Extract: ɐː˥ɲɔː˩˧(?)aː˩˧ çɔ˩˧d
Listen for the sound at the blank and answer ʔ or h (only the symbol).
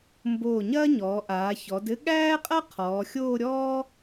ʔ